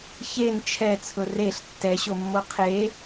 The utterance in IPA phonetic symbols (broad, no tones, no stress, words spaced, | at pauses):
çen t͡ʃʰɛt͡sʰʊ reɬ tːɛɕomːo qʰe